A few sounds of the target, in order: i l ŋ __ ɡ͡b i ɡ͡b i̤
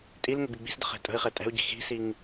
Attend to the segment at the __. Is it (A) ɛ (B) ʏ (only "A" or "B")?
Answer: B